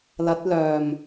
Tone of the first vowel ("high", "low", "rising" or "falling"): rising